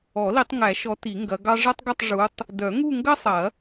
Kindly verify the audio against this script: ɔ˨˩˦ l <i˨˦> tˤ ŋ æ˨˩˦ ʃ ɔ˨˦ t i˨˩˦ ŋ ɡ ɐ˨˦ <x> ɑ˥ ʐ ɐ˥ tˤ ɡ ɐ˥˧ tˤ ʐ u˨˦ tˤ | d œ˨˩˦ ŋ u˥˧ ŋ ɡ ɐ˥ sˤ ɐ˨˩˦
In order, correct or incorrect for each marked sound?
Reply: correct, incorrect

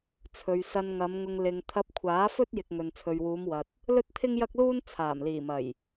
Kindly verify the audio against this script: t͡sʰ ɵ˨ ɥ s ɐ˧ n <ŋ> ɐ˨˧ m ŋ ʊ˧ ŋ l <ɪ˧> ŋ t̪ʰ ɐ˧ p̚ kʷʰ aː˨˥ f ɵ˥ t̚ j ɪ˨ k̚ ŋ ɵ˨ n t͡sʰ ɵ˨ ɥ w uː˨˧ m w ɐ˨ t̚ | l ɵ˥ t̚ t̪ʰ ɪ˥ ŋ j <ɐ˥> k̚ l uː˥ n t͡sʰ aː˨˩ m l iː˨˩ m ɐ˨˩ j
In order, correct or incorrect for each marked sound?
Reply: correct, incorrect, correct

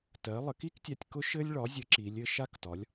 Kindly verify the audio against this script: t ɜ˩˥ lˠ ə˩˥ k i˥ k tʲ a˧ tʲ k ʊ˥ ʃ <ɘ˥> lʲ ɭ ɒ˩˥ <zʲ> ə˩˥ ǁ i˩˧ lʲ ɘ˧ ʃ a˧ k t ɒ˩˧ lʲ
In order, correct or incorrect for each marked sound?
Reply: correct, correct

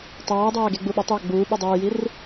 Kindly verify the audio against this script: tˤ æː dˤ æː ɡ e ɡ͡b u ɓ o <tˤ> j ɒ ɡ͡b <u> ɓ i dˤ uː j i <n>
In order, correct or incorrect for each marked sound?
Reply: correct, incorrect, incorrect

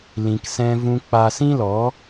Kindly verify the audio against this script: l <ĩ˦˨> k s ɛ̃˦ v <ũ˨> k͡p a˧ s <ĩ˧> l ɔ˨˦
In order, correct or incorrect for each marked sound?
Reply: incorrect, incorrect, incorrect

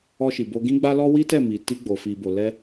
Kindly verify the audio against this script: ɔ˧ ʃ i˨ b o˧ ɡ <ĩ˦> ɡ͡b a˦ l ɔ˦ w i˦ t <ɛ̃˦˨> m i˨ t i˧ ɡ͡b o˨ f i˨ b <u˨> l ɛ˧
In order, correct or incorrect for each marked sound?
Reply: correct, incorrect, incorrect

